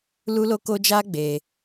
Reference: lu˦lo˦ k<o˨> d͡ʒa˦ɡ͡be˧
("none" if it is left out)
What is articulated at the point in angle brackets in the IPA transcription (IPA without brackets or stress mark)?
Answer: o˦